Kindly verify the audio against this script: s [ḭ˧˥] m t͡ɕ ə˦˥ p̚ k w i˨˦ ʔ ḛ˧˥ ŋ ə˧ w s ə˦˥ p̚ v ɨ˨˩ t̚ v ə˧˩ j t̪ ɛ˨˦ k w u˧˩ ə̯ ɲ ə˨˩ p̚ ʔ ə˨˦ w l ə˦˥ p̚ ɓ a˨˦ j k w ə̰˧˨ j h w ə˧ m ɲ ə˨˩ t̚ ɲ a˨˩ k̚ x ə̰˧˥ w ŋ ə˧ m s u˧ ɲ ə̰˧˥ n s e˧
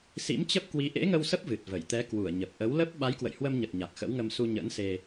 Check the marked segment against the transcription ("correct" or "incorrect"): correct